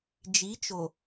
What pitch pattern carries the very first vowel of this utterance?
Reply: rising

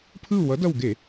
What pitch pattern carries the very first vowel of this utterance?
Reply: falling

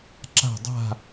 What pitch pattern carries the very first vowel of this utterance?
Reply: falling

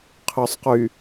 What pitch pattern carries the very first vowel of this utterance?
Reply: low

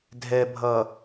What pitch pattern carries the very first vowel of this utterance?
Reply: low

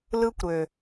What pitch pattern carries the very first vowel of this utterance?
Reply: high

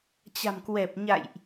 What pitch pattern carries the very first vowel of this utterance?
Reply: low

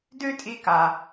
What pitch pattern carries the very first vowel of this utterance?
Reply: high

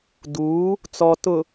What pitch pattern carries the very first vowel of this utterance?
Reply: rising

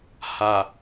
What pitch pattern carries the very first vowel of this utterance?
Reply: low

